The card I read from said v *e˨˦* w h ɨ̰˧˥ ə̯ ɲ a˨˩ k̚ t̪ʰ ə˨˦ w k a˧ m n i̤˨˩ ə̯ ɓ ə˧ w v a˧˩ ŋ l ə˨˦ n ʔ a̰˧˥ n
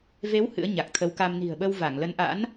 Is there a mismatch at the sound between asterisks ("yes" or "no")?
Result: no